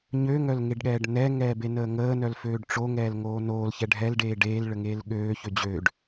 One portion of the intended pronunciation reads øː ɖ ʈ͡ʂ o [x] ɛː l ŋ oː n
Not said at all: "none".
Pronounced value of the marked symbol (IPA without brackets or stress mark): ŋ